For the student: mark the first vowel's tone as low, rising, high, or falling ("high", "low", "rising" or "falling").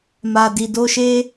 low